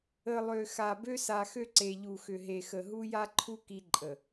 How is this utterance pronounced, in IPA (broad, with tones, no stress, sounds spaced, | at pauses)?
ə˨ lˠ ø˨ x a˨ b ø˦ s a˨ x ø˦ ǀ e˨ ʎ u˨ x ʏ˨ ɦ e˨ x ə˨ ɦ u˦ j a˦ ǃʰ u˦ k i˦ ǃʼ ə˨